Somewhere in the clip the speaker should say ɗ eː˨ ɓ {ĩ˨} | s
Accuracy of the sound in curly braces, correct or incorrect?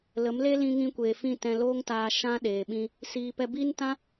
incorrect